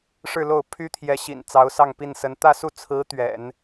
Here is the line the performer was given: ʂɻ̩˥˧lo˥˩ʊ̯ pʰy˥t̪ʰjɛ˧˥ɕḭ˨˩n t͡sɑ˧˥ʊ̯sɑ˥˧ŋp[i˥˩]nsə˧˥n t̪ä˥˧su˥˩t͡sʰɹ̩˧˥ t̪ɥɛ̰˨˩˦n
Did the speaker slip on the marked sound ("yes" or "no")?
no